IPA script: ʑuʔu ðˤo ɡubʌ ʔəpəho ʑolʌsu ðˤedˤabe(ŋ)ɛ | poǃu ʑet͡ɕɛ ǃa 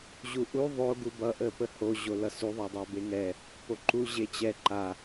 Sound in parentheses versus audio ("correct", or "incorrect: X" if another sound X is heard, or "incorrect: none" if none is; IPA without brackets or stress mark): correct